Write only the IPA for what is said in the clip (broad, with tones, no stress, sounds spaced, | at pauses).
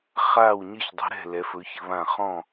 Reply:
χ aː˧˩ w ɲ ɘ˧˩ ç dˤ ɛ̤˩˧ ɾ ɛ̤˧˩ l ɛ˩˧ f ɵ˩˧ ç ɘ˩˧ β ã˧˩ χ ɔ̃˧˩